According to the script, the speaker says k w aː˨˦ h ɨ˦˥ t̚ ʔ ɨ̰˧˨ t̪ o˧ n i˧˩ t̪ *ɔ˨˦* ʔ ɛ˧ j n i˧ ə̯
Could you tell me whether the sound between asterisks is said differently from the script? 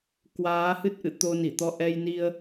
yes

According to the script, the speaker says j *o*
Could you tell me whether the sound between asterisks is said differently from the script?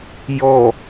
yes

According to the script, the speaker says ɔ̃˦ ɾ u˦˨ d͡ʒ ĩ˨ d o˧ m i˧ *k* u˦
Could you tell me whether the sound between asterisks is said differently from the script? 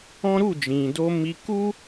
no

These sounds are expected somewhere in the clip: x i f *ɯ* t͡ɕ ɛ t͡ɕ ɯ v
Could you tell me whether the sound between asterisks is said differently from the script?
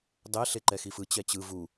no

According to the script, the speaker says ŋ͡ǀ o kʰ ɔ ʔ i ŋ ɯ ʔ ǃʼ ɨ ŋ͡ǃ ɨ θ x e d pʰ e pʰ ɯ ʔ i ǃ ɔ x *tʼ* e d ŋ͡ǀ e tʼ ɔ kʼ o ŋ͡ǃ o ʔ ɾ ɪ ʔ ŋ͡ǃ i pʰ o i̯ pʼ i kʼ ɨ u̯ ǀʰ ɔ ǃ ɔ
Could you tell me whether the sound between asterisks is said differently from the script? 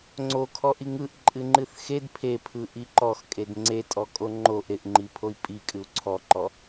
yes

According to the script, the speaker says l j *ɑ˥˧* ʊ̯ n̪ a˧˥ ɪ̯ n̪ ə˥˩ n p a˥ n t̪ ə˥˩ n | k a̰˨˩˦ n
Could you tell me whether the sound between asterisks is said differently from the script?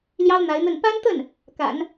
yes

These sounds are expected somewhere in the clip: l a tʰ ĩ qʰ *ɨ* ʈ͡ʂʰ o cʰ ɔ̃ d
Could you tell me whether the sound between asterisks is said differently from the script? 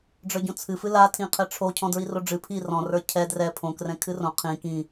yes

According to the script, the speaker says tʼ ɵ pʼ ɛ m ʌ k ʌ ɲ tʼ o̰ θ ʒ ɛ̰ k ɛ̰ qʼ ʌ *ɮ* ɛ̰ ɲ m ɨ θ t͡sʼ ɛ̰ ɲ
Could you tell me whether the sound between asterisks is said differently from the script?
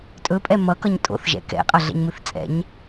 no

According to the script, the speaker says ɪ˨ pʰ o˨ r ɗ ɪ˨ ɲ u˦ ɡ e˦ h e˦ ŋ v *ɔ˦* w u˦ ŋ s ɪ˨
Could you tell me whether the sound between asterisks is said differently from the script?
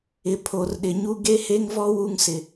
no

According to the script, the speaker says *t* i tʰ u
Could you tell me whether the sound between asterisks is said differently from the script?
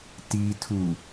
no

